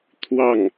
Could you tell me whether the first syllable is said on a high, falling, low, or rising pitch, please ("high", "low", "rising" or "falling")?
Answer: falling